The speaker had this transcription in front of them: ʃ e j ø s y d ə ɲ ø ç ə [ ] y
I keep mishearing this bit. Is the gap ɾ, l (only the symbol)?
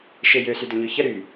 ɾ